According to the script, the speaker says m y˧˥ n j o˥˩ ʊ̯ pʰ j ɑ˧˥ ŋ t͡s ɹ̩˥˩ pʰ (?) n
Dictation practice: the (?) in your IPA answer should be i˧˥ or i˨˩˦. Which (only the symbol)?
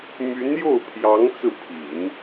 i˨˩˦